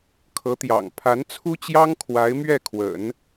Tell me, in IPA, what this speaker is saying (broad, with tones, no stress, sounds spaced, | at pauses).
kʰ ɤ˧˥ t̪ j ɑ̰˨˩ ŋ pʰ a˧˥ n t͡sʰ u˥ t͡ɕ j ɑ˥ ŋ kʰ w a˧˥ ɪ̯ m ɥ ɛ˥˩ kʰ w ə̰˨˩˦ n